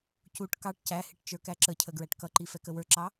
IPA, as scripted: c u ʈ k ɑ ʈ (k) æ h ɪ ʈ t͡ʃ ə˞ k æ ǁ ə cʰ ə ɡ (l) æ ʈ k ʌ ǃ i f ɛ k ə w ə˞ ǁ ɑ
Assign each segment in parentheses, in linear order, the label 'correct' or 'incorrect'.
incorrect: c, incorrect: ɹ

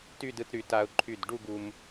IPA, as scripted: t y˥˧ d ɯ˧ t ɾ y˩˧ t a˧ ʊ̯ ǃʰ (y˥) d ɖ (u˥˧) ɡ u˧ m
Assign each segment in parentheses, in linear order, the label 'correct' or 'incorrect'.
incorrect: y˧˩, correct

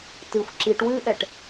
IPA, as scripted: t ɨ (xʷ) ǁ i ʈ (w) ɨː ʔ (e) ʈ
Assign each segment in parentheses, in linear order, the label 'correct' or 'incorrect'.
correct, correct, incorrect: ɛ

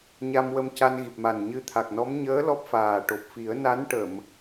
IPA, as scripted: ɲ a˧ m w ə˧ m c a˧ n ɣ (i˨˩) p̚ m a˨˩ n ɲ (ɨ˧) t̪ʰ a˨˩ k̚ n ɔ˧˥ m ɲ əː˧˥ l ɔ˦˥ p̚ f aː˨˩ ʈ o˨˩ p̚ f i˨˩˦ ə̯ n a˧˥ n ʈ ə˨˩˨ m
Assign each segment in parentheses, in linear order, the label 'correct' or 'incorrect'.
correct, correct

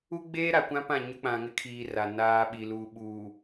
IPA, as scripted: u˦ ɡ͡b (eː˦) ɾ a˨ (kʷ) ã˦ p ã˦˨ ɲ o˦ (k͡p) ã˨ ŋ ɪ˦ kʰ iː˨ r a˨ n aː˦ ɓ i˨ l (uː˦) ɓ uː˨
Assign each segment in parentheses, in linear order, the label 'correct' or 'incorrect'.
correct, correct, correct, incorrect: uː˨

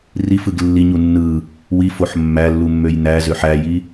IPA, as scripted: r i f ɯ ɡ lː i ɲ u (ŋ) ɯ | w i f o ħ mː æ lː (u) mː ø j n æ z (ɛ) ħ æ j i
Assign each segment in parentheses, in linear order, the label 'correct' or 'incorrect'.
incorrect: nː, correct, incorrect: ø

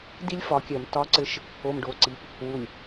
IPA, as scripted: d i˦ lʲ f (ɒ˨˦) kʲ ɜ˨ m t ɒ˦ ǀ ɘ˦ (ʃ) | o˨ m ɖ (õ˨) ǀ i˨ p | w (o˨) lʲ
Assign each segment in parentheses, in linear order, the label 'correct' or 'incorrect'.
correct, correct, incorrect: o˨, incorrect: u˨

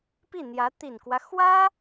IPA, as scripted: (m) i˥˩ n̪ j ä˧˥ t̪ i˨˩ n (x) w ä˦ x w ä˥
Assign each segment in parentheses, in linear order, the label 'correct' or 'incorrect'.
incorrect: p, incorrect: k

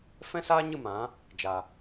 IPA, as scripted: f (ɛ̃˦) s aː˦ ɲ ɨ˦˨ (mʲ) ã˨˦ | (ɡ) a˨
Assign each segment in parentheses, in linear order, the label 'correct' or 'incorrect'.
correct, incorrect: m, incorrect: d͡ʒ

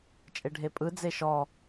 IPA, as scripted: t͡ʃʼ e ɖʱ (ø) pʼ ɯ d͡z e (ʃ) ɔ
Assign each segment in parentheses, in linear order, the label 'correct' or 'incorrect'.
incorrect: e, correct

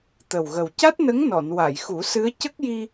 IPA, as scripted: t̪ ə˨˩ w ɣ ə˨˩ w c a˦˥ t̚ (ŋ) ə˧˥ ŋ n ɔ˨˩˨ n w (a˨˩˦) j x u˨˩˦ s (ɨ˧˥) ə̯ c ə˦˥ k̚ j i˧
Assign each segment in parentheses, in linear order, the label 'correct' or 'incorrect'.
incorrect: n, incorrect: a˨˩˨, correct

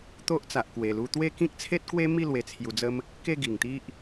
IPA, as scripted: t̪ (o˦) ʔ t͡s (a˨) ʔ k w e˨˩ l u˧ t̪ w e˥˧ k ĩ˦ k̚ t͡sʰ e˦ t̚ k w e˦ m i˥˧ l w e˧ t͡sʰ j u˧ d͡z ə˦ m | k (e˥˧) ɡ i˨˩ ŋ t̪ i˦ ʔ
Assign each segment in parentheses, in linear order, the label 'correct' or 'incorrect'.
correct, correct, correct

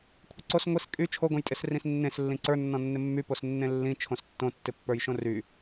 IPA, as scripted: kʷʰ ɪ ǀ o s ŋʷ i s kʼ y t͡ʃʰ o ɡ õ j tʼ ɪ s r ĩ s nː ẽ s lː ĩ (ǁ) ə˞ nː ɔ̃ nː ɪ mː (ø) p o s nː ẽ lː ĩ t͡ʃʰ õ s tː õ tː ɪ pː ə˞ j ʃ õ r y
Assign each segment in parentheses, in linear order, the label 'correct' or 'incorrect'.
incorrect: ǀ, incorrect: y

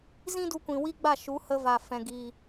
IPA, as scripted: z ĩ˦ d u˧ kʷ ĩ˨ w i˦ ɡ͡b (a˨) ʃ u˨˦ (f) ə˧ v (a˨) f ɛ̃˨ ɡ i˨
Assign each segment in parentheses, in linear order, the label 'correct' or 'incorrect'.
incorrect: a˦˨, incorrect: h, correct

